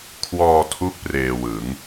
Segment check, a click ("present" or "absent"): absent